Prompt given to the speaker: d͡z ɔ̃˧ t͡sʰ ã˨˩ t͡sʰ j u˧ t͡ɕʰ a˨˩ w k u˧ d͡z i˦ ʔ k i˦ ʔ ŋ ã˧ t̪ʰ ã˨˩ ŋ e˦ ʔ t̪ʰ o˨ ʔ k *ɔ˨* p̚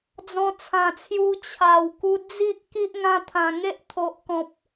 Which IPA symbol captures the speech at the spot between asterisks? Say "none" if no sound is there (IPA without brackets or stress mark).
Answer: ɔ̃˨